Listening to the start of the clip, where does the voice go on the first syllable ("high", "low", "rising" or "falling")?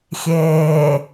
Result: low